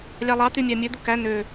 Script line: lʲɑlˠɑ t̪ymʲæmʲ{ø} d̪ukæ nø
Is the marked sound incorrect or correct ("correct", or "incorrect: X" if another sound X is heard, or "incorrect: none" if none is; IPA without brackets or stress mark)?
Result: correct